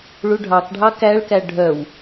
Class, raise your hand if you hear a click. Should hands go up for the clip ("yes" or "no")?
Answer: no